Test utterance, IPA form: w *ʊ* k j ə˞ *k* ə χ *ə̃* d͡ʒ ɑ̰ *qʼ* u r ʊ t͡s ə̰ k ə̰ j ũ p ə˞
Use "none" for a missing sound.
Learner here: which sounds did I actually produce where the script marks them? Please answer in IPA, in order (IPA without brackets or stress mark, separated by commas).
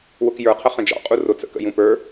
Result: ʊ, qʰ, ə̃, qʼ